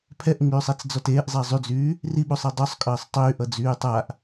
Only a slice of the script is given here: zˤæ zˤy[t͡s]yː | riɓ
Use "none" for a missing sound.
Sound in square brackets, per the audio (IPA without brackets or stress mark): d͡z